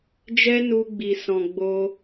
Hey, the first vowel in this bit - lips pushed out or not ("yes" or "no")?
no